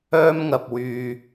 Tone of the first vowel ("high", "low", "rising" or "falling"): high